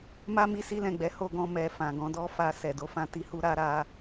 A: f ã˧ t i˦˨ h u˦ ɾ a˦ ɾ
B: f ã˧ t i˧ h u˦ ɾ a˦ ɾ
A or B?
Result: B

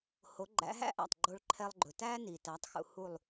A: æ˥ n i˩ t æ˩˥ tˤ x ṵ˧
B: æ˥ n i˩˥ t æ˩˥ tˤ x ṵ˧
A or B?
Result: A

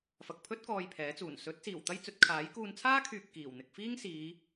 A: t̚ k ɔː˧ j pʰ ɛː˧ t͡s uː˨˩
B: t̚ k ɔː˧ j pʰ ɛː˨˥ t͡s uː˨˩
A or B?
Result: B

